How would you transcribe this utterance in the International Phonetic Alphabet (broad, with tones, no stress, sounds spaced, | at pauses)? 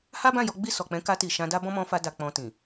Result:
h a˦ b ã˦˨ j ɔ˨˦ ɡ͡b i˦˨ s ɔ˨ k͡p ɛ̃˨˦ k a˧ t i˨ ʃ ã˧ d a˦ b ɔ̃˦ m ɔ̃˧ f a˧ d a˨ k͡p ɔ̃˨ t ĩ˨